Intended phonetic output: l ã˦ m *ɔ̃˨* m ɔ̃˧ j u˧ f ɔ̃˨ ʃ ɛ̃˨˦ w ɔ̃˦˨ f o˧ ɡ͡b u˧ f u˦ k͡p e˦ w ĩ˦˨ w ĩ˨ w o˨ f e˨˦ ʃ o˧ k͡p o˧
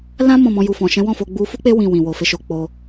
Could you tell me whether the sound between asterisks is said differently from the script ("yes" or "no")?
yes